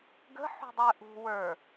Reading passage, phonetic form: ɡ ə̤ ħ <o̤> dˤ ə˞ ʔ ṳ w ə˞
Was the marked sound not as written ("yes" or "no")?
yes